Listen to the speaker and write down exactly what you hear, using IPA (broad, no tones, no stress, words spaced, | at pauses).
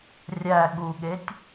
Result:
rʲæ ɠuɠetʲ